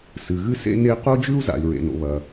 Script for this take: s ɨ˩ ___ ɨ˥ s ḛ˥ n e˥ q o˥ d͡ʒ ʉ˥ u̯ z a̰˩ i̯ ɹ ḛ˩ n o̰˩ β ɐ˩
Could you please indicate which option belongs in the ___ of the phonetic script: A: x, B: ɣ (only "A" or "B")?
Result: B